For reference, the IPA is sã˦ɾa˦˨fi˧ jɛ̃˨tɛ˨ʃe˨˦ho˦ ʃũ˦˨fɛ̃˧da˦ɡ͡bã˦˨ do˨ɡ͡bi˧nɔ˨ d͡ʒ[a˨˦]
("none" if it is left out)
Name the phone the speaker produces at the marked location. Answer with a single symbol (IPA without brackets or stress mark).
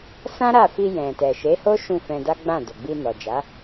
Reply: a˨˦